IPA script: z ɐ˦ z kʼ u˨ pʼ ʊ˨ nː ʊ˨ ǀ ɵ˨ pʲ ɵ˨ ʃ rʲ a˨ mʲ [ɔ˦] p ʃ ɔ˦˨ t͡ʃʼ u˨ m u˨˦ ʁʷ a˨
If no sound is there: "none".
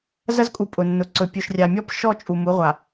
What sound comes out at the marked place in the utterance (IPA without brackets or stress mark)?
ɔ˦